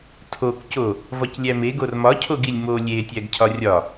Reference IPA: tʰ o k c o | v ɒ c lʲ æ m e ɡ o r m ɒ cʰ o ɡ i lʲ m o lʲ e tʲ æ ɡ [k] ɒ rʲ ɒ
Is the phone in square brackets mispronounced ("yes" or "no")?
yes